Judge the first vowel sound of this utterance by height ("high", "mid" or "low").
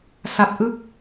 low